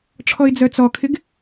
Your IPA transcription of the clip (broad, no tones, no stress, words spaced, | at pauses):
ʈ͡ʂʰɔɪ̯d͡zœt͡sɔkʰɪɡ